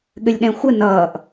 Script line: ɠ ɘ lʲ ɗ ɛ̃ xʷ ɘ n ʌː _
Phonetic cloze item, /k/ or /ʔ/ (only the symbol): ʔ